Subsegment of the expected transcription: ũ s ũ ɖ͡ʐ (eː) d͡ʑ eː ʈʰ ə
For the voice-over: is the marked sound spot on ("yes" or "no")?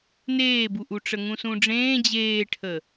no